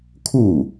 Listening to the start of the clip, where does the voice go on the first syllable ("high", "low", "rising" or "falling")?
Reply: falling